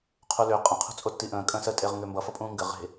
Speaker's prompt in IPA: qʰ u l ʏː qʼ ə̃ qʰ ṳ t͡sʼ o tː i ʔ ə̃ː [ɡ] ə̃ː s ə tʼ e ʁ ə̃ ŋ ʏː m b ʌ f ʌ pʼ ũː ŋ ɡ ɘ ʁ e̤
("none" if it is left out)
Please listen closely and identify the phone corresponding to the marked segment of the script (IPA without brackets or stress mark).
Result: kʼ